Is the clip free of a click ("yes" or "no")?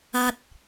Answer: yes